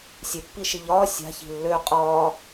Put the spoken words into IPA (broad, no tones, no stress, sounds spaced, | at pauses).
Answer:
sʲ e pː i ʃ i ʎ ɒː sʲ a̤ ç i̤ lː ø qʼ ɒː